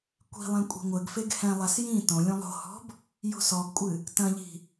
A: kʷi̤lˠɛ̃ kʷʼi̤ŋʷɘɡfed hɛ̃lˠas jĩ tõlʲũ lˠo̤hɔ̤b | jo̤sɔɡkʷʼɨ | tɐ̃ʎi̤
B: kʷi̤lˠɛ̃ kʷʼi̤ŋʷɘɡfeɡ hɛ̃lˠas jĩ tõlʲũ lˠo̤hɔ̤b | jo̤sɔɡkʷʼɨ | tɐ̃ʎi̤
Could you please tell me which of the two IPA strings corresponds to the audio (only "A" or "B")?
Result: B